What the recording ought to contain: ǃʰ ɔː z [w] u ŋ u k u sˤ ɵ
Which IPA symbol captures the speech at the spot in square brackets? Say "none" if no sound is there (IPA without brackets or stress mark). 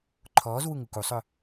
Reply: w